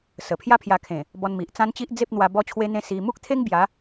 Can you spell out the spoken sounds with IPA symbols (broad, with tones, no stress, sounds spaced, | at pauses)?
s ə˨˩ pʰ j a˦ pʰ j a˧ kʰ ẽ˨˩ | b ɔ˧ n m i˨ ʔ t͡s ã˦ n t͡ɕ i˦ ʔ d͡z e˦ p̚ n̪ w a˧ b ɔ˦ t͡ɕʰ w e˦ n̪ ẽ˦ s i˧ m u˦ k̚ t̪ʰ e˦ ŋ b j a˨˦